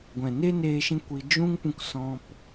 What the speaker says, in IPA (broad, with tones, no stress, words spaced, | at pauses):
ɡʷɛ̃˨ne˦neː˧ ʃĩ˦kʷi˧ d͡ʒũ˦ŋpũ˧k sɔ̃˧p